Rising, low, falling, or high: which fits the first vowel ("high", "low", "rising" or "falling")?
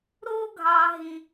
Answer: high